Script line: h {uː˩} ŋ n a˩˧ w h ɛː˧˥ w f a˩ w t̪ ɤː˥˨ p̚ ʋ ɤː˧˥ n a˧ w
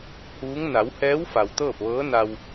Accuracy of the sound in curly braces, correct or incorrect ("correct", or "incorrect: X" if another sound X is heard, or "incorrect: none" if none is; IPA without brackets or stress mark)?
incorrect: uː˧˥